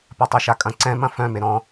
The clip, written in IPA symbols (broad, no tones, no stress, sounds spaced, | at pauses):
p a tˤ ɛ ʃ a kʼ ɐ̃ ǀ ɛ̃ m ɐ̃ f œ̃ m e ɾ ɔ̃